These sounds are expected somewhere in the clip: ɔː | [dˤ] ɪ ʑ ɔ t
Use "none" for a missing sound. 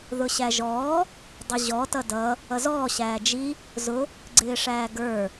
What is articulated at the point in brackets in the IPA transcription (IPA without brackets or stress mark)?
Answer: dˤ